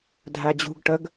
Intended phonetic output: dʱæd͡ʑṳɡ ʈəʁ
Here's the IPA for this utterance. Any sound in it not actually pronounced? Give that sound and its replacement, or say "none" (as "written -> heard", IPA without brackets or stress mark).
ʁ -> ɡ